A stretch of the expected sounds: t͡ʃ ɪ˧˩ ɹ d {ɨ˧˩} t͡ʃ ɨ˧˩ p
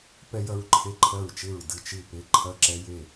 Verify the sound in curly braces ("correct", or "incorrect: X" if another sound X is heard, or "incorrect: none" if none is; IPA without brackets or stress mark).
correct